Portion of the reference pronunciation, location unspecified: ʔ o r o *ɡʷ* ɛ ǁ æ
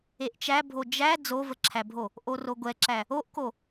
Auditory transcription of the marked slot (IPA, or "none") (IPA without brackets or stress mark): ɡʷ